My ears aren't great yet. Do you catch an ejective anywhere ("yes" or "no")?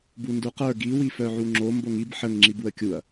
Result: no